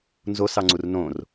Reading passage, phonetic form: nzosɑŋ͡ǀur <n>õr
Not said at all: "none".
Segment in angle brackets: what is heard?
n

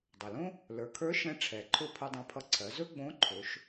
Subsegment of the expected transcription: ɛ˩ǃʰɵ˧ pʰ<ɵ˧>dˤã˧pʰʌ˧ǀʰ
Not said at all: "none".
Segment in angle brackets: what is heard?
ɵ˧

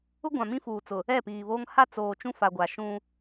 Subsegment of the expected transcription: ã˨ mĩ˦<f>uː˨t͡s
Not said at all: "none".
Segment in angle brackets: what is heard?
f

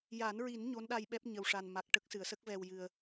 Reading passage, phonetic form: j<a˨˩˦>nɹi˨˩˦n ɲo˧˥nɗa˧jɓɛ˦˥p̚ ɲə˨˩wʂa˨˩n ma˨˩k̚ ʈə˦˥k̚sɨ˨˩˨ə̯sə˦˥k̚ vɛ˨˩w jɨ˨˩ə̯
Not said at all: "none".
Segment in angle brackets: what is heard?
a˨˩˦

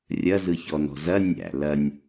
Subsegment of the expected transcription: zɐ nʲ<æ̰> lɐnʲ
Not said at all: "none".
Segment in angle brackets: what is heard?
æ̰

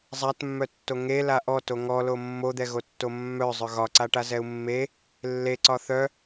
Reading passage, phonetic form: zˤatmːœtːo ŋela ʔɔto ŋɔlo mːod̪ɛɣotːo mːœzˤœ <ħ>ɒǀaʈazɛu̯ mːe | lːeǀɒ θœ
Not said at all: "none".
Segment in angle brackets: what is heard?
ɣ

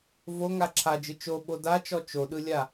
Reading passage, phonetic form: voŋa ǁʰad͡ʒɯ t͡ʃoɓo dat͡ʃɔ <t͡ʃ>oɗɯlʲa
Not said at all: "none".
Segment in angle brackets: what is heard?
t͡ʃ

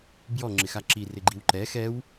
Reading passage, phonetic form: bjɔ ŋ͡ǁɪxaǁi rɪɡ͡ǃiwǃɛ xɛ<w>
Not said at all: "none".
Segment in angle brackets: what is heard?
w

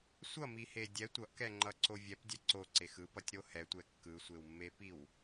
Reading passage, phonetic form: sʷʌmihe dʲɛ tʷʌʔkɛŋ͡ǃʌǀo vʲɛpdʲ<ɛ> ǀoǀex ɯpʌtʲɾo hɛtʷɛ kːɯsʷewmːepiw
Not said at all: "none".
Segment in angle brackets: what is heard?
ɛ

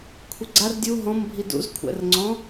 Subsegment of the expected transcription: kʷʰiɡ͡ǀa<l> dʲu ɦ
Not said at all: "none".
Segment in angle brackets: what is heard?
r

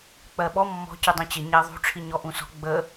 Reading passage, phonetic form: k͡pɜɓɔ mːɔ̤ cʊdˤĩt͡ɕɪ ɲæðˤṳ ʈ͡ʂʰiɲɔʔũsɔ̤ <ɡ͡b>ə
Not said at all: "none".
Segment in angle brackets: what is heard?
ɡ͡b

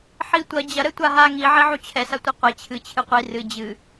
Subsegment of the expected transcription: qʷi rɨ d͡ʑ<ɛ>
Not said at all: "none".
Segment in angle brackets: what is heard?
ɨ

